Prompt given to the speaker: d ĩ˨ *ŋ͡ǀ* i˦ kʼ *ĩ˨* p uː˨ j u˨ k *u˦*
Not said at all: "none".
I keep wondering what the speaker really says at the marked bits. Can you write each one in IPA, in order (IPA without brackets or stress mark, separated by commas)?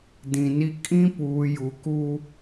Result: n, ĩ˦, u˦